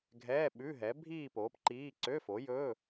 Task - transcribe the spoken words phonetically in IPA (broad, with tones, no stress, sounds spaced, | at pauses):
ɡʱ ɛː˧˥˧ ɓ ʉ˧˥˧ ɦ ɛ˨˥ bʱ iː˥˧ p oː˨˥ p ǃ iː˧˥˧ ǀ ø˧˥˧ f o˨˥ j ɵː˧˥˧